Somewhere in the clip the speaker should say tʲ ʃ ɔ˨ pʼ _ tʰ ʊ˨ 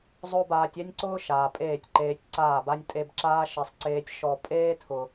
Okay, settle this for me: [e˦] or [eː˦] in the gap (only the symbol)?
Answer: eː˦